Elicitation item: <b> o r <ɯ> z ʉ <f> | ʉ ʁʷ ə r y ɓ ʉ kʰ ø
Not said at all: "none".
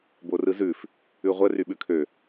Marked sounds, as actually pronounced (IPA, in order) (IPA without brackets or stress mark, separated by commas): b, ɯ, f